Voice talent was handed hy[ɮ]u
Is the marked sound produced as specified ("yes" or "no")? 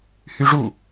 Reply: no